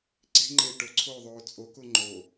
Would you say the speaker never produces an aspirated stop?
no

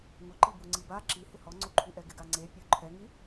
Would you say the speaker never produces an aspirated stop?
no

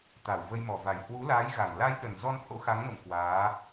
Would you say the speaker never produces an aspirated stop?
yes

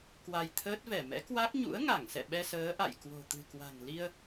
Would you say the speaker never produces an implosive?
no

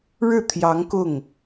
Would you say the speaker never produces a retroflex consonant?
no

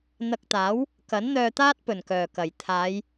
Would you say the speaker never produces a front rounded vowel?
no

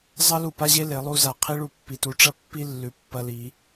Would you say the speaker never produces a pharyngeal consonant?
yes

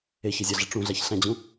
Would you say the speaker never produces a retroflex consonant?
no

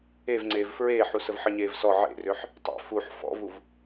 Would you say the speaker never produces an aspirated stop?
yes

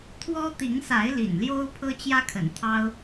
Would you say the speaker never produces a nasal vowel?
yes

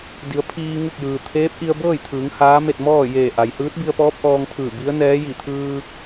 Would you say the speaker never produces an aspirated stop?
no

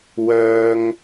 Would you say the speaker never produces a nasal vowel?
yes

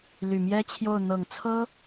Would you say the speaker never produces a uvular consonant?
yes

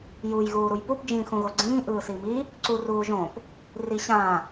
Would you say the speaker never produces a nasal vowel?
no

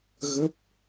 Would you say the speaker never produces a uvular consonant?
yes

